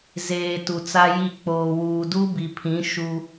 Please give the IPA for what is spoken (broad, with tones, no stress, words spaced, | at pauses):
zeː˨ tu˨t͡sa˦ji˦˨ k͡poː˨wuː˨ du˦bi˨pʰĩ˨˦ ʃu˦